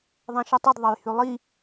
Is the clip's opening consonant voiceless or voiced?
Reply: voiced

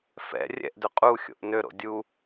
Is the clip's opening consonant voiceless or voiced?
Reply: voiceless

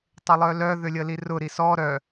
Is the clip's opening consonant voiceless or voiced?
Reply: voiceless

